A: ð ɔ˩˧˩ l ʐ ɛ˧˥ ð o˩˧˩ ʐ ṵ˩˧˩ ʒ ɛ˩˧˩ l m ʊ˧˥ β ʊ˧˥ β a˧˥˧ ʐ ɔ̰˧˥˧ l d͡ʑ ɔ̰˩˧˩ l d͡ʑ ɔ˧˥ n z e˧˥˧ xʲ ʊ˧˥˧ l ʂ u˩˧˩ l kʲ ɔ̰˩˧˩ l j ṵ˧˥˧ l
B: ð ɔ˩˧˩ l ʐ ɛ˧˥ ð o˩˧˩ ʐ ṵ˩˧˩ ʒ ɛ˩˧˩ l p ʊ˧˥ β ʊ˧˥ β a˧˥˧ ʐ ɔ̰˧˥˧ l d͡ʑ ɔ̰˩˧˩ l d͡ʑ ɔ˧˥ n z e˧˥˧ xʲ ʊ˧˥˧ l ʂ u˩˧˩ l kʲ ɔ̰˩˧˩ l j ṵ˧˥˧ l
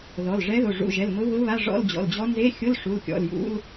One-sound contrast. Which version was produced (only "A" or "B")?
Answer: A